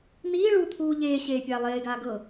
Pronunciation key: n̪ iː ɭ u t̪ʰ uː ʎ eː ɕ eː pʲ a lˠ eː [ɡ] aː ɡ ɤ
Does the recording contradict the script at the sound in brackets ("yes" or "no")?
no